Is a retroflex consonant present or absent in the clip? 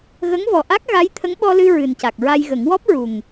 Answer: absent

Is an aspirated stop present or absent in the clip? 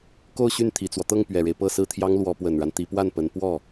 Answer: present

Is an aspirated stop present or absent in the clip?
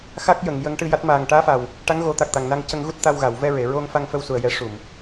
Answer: absent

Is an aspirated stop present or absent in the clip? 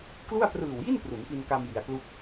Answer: absent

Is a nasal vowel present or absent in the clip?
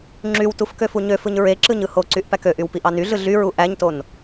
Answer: absent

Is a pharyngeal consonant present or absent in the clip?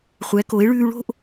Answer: absent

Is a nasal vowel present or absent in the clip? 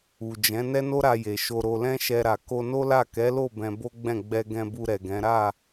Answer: present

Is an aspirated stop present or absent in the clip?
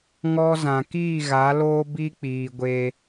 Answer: absent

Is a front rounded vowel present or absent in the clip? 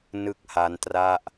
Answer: absent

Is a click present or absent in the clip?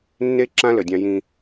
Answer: present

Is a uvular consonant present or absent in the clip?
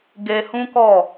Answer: absent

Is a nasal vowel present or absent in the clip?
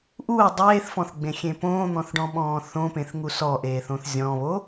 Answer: present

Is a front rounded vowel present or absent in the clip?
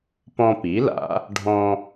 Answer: absent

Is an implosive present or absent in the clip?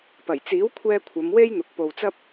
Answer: absent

